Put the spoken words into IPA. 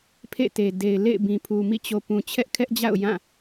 pʰ ḛ˦˨ t e˨ d e˨ ɪ̯ l ḛ˦˨ ɪ̯ b ĩ˨ pʰ u˨ m ḭ˦˨ t͡ɕ o˨ p ũ˨ t͡ɕʰ ɛ˦ ʔ kʰ ɛ˦ ʔ d͡ʑ a̰˦˨ ʊ̯ j ã˦˨

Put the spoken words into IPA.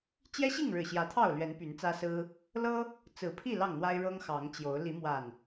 t͡ɕ j ɛ˦ ɕ i˥˨ ŋ ɻ ɻ̩˨˩ ɕ j ä˨˦ t̪ʰ ɑ˥˨ ʊ̯ l ɥ ɛ˨˦ n p y˨˦ n t͡s ä˦ s ɹ̩˦ | l ɤ˦ | t͡s ɹ̩˨˩ pʰ i˥˨ l ɑ˥˨ ŋ n̪ w a˦ ɪ̯ ɻ ɤ˦ ŋ x ɑ˨˦ ŋ t͡ɕ j o˨˦ ʊ̯ l i˨˦ m w a˨˩ n

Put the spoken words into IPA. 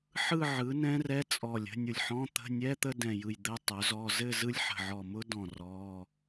ħ ɯ˥˧ ʕ ɯ˩˥ n ɛ̃˦˥ r ɛ˧˥˧ t͡sʼ ɔ˧˩ lʲ ə̤˧˥˧ nʲ ʊ˧˩ lʲ ħ ɔ̃˧˥˧ t̪ ə̤˧˥˧ nʲ ɛ˧˥˧ t̪ ə˥˧ d ɛ̃˧˩ j ɯ˧˩ j d̪ ɘ˦˥ tˤ ɵ˩˥ z ɔ˧˥˧ z ɘ˥˧ z ɯ˦˥ lʲ ħ ə̤˧˩ ʕ ɔ˧˩ m ʊ˦˥ d ɔ̃˧˩ r ɔ˧˥˧

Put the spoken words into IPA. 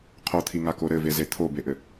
qʰ o t̪ʰ i ŋ a k o ɾ ɘ v e z e t̪ʰ o b e ʔ ɘ

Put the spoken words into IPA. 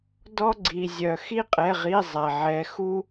d ɔ˦ ɡ͡ǀ i˩ zʲ œ˩ x i˦ qʼ ɛ˩˧˩ ʁ i˩˧˩ zˤ æ˩ ʕ ɛ˩˧ x u˦

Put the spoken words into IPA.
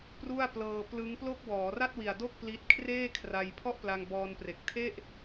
p r u˥˩ a̯ p l ɤː˧ p l ɯ˦˥ ŋ p l o˥˩ k̚ w ɔː˩˦ r a˥˩ t̚ w i˨˩ a̯ d o˥˩ k̚ p l i˦˥ t̚ kʰ r eː˥˩ kʰ r a˧ j pʰ ɔ˥˩ ʔ p l a˧ ŋ b ɔː˧ n p r e˨˩ k̚ tʰ e˥˩ ʔ

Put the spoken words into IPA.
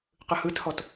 q ɯ h ɯ t h ɔ t

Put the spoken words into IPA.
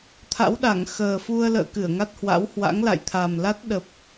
t̪ʰ a̰˧˥ w ɗ a˧˩ ŋ x əː˨˩ f u˧ ə̯ l ə̰ː˧˨ k ɨ˧˩ ə̯ ŋ a˦˥ t̚ h w a̰˧˥ w h w a̰˧˥ ŋ l a̰˧˨ j t̪ʰ a˨˩ m l a˦˥ t̚ ɗ ə˨˩ p̚

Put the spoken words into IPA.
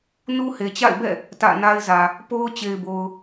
n u˦ h e˨ t͡ɕ a̰˦˨ ɪ̯ b ɛ̰˦˨ | t ä̰˦˨ n a˦ ɪ̯ z ä˨ | p o˦ ʊ̯ t͡ɕ e˨ ɪ̯ b o˨ ʊ̯

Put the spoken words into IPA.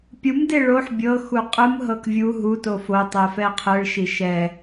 pʲ u m d e ɭ o ħ bʲ ɤ x u qʼ ɯ m ɦ ɤ k vʲ u ɦ u t o f o tˤ ɛ f ɛ qʰ ɯ ɭ ʃ i ʃ ɛ

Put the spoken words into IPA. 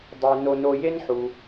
dˤ ʉ˩ n o˨ n o˨ j e˦ n ħ u˩

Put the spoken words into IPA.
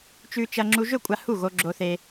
t͡ʃ ʉ˧ t͡ʃ ɐ˧ ŋ͡ǁ u˧ ʒ ɵ˥˩ kʷʼ a˧ h u˥˩ ɣ o˧ ɡ͡ǁ o˧ θ e˧

